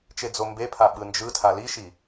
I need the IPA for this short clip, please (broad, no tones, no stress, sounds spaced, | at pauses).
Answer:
t͡ʃ e d͡z o m b e pʰ a ɓ ɯ n d͡ʒ ɯ tʰ a l i ʃ i